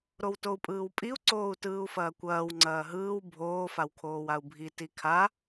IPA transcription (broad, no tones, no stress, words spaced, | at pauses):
ɾowtou̯pʼɯːwpʼiu̯ ǀoːu̯tɯːu̯fɐːkʷɐːw ŋ͡ǀɐːɦɯːw bʱoː fawkʰoːwau̯bʱi tikʰa